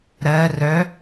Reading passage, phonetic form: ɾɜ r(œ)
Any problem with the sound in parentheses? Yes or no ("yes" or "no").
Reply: no